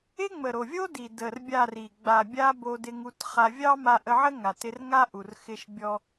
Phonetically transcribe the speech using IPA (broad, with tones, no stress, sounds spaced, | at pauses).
ɪ˦ ŋ͡m ə˨ ɾ o˨ vʲ o˦ d i˨ d ə˨ r bʲ a˦˨ r i˨ ɡ͡b a˨ bʲ a˧ b o˧ d ɪ˧ ŋ u˧ t χ a˧ vʲ ɑ˦ m a˧ ʔ ə˧ ʕ ə˦ ŋ a˨ t ɪ˧ r ŋ a˦ ʔ u˨ r x ɪ˧ ʃ bʲ ɔ˧